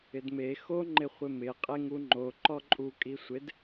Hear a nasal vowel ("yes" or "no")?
no